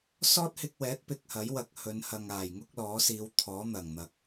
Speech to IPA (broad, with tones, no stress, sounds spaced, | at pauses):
s ɔː˥ t̚ h ɪ˧ k̚ w ɛː˨˥ t̚ p ɪ˧ k̚ h ɐ˨˥ j w ɐ˧ k̚ h ɵ˨˧ n h ɐ˨ ŋ aː˨˩ j ŋ ʊ˥ k̚ l ɔː˨˥ s iː˨˧ w t̪ʰ ɔː˨˥ n̪ ɐ˨˩ ŋ n̪ ɐ˨˥ k̚